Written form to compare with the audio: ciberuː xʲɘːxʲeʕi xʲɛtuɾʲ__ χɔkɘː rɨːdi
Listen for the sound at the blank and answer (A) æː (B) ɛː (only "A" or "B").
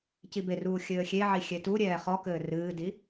B